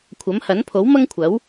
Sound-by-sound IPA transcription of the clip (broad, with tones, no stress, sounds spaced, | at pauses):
kʷʰ ɐ˨˥ m h ɐ˨˥ n pʰ o˨˥ w m ɐ˥ ŋ kʷʰ ɐ˨˥ w